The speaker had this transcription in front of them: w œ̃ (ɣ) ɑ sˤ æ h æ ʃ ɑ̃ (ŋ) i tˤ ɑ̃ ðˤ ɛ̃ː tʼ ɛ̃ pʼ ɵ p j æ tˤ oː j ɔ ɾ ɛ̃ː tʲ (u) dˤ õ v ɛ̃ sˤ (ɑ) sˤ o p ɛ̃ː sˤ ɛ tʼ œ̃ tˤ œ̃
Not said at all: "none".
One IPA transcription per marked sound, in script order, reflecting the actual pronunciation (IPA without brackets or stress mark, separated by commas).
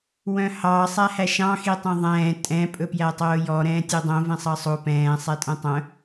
h, x, ø, ɑ